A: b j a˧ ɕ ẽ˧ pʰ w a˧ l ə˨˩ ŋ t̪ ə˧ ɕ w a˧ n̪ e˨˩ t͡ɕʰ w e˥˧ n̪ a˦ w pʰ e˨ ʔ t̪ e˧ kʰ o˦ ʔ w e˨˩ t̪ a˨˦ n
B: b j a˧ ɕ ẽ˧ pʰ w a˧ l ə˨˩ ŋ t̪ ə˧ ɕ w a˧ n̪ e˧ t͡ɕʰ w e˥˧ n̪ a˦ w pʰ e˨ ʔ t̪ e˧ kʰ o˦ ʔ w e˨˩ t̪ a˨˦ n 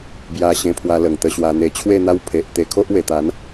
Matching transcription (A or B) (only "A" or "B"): B